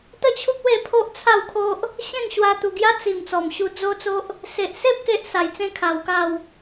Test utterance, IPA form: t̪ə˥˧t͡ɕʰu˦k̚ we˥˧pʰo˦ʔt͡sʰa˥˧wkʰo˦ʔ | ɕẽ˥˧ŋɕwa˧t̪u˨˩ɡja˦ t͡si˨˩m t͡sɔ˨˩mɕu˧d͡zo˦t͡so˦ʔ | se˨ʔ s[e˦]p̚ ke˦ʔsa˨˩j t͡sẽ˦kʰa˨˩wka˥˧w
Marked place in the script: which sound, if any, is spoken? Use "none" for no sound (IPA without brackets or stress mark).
e˦